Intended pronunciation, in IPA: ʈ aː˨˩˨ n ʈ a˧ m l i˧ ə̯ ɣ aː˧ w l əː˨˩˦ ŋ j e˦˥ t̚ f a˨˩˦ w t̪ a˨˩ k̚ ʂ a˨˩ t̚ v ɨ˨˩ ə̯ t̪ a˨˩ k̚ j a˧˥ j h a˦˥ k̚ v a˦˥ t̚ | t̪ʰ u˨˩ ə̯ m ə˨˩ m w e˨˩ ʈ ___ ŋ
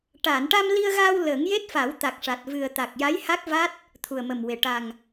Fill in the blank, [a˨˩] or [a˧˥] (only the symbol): a˨˩